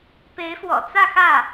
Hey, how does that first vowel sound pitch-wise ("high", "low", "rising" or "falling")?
rising